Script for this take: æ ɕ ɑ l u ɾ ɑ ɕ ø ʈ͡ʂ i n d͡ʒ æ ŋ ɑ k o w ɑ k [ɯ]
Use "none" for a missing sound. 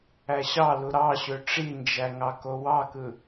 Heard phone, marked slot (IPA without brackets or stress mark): ɯ